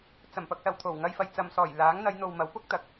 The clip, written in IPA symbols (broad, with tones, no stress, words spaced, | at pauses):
t͡sɐ˨˩m pɐ˨k̚sɐ˨˩wt̪ʰo˨˩w ŋɐ˧jfɐ˨jt͡sɐ˨m sɔː˨˩jlaː˨˥ŋ n̪ɐ˨˧jn̪o˨w mɐ˨˥wpʊ˥k̚ t̪ɐ˨k̚